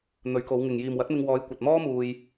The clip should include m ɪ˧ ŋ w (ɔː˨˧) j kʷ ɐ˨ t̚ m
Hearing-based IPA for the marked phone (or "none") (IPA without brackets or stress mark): ɔː˨˧